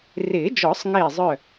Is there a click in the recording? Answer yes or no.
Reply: no